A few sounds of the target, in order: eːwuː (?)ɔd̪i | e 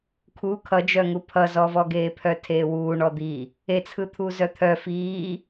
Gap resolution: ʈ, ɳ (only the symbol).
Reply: ɳ